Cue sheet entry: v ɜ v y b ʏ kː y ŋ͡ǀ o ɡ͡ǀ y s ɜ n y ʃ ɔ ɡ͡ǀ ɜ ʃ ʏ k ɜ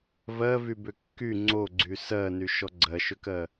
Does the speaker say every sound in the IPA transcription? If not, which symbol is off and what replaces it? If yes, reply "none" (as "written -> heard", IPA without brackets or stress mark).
none